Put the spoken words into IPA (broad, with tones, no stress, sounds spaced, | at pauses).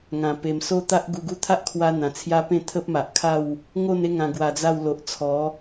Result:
ŋ ã˨˩ p e˨˩ m s o˦ t̪ a˦ ʔ ɡ u˧ ɡ u˦ t̪ʰ a˦ ʔ kʰ w a˧ n̪ ã˨˩ t͡sʰ j a˦ p ẽ˥˧ t̪ʰ ə˦ p̚ m a˨ ʔ kʰ a˥˧ w | ŋ o˥˧ n e˦ ŋ ã˧ ɡ w a˧ d͡z a˥˧ w l o˨ ʔ t͡sʰ ɔ˨˦